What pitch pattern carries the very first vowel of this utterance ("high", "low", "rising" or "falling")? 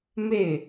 falling